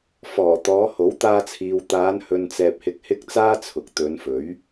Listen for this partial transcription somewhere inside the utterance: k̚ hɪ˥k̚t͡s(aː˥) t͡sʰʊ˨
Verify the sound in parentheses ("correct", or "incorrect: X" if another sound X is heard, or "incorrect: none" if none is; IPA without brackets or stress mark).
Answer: correct